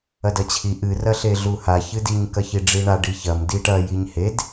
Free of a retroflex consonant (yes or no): no